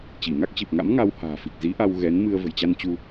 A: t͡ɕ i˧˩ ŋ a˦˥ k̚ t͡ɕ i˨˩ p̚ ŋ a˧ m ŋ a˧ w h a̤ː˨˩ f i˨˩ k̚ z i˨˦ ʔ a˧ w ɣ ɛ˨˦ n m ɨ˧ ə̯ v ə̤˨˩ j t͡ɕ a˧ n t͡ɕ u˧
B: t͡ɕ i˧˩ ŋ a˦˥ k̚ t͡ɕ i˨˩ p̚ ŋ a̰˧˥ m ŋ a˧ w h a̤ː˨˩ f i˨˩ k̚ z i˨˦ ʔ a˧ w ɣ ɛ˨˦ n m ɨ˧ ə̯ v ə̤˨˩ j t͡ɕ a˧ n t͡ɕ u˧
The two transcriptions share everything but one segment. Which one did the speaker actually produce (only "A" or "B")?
B